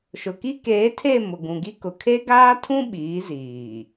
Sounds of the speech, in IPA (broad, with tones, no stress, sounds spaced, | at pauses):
ʃ ʊ˨ k i˦ k eː˨˦ tʰ e˦˨ m ʊ˨ ɡ ũ˨ ɡ i˦ k ʊ˨ kʰ e˦ ɡ aː˦ tʰ ũ˦ ɓ iː˨˦ z iː˨